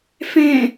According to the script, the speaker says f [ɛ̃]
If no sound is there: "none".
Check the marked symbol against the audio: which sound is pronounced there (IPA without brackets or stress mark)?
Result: ɛ̃